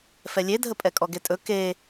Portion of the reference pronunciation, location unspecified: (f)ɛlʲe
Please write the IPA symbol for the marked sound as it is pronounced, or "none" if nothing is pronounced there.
f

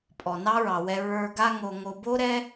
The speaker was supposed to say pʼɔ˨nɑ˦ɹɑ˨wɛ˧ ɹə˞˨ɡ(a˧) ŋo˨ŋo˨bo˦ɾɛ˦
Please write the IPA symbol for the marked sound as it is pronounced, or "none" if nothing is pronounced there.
a˧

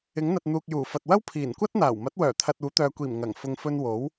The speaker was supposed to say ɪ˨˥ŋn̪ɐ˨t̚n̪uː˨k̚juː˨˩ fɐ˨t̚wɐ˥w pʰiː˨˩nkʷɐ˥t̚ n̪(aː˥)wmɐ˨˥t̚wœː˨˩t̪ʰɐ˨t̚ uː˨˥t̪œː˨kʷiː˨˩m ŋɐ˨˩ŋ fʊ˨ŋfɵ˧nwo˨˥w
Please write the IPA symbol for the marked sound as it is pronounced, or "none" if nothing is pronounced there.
aː˨˩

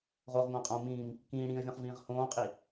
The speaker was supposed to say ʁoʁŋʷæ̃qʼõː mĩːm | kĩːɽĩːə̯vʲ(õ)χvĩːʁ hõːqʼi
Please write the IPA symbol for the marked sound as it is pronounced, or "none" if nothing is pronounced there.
õ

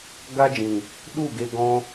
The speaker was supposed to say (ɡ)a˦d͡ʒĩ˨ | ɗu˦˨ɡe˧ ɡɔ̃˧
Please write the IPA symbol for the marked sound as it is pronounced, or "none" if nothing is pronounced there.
ɡ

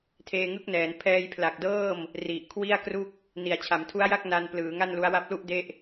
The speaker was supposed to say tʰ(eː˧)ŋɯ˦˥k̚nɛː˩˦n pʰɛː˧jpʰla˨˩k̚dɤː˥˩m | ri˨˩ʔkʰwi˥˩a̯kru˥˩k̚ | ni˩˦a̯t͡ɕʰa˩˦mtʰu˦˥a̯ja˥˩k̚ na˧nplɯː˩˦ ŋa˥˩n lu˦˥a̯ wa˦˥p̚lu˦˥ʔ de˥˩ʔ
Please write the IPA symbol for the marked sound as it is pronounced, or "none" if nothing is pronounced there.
eː˧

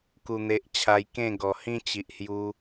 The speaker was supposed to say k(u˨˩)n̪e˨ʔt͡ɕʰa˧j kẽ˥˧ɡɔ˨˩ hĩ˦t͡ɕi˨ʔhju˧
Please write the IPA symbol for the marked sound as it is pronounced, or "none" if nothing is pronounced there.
u˨˩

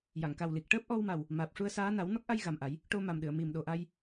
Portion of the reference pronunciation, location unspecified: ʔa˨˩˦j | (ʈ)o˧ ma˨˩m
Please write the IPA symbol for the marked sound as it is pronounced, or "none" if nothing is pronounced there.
ʈ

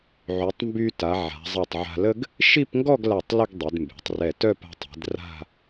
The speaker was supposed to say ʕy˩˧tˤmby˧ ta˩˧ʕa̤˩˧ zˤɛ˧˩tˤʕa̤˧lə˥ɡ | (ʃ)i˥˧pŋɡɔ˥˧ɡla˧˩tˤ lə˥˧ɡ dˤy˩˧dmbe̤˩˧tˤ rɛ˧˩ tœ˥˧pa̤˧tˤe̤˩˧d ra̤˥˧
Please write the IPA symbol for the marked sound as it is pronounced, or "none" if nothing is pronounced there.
ʃ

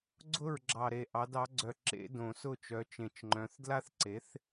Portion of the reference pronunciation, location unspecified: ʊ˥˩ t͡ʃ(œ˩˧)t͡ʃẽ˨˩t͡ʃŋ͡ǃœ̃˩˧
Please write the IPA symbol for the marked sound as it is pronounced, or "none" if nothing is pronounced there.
œ˩˧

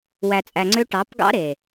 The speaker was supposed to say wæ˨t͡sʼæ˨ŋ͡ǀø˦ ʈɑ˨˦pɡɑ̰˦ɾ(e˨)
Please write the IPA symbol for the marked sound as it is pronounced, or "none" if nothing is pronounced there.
e˨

